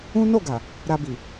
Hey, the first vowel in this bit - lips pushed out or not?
yes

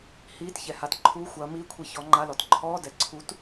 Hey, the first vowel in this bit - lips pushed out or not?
no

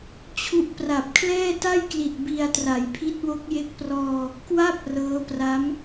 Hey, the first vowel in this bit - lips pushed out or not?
yes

